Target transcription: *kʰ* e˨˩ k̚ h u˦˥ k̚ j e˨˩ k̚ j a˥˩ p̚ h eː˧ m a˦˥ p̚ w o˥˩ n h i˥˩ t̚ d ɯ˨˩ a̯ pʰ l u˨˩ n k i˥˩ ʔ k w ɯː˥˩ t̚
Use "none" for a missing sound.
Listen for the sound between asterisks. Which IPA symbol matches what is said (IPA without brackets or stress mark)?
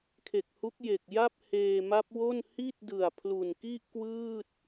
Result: kʰ